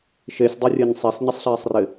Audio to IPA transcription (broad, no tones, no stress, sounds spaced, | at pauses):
ʃ e sʲ dˤ o rʲ ɛ ɲ sˤ e s ɲ ɪ sˤ ɬ ɛː sˤ r ɪ